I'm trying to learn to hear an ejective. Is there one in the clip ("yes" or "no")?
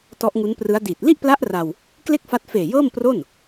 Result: no